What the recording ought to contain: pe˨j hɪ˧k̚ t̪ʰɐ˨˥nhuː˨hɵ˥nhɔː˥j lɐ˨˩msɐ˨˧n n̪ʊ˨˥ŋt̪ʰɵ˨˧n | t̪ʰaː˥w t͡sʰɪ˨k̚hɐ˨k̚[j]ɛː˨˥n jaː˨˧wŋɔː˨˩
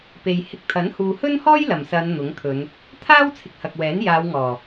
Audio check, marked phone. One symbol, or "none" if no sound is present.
w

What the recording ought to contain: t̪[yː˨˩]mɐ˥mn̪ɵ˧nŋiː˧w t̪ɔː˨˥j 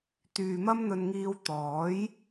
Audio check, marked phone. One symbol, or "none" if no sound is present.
yː˨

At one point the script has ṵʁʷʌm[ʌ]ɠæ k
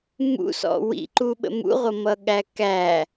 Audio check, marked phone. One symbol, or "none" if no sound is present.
ʌ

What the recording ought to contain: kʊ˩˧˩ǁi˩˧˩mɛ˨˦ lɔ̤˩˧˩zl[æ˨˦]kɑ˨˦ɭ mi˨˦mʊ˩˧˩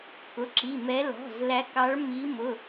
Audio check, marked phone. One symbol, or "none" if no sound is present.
æ˨˦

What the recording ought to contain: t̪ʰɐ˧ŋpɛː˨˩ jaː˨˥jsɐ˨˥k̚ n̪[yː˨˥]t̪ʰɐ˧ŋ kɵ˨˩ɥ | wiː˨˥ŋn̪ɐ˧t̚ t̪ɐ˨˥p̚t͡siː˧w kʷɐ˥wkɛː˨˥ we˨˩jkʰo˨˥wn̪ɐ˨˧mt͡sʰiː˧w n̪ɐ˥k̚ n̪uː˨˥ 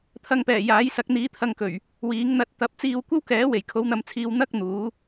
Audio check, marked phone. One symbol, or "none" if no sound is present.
iː˨˥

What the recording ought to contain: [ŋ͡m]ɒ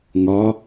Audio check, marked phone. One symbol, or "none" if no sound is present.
ŋ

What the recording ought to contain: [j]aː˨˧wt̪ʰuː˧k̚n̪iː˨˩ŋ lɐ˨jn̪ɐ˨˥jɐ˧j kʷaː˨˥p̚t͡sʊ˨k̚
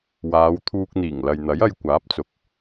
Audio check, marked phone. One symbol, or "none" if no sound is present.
w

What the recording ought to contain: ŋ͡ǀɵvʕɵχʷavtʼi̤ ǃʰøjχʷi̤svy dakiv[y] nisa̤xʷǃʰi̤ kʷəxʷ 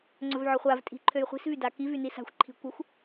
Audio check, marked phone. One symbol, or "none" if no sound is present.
y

